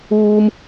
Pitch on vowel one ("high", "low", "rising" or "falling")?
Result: high